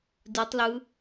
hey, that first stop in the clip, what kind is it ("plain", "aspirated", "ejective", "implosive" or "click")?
plain